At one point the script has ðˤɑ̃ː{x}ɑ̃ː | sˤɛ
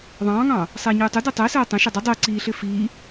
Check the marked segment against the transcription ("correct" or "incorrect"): incorrect